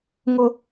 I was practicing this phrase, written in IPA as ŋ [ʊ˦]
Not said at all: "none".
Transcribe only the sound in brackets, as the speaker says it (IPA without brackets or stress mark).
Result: ʊ˦